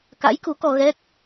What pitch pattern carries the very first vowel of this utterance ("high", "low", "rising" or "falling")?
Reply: rising